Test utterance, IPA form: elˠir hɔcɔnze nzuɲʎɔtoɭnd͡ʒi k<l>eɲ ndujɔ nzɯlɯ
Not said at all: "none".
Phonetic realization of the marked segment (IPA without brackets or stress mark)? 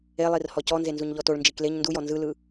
l